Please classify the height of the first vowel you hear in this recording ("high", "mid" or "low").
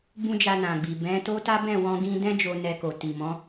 high